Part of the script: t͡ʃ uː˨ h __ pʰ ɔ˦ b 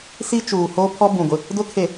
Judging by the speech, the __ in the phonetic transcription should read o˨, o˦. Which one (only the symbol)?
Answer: o˦